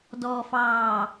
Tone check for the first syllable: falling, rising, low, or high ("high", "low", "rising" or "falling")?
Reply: low